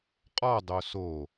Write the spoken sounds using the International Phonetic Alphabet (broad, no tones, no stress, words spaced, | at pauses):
qʼɔdˤo so